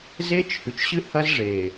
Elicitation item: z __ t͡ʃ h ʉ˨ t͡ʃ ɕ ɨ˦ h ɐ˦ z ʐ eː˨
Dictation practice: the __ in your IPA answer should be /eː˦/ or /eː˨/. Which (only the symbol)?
eː˦